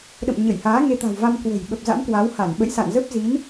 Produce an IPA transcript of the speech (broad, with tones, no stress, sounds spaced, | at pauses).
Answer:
ɗ ə̰˧˨ m ɲ ə˧˩ j h aː˨˦ ŋ e˧ t̪ a̤˨˩ w v a˧ m k w ə̤˨˩ j ɓ ə˨˩ p̚ z a̰˧˥ m k w a˨˦ w h a˧˩ n ɓ ə̰˧˨ j s a̰˧˨ n z ə˦˥ p̚ z i˨˦ n